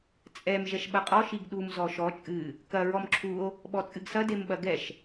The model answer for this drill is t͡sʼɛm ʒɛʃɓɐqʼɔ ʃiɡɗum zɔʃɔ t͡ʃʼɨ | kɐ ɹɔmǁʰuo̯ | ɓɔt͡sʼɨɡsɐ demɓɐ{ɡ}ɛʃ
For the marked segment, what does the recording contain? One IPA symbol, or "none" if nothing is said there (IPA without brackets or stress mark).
ɡ